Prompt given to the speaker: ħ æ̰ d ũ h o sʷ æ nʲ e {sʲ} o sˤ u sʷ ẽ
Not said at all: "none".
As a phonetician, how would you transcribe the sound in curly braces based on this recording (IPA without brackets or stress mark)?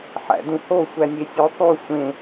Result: sʲ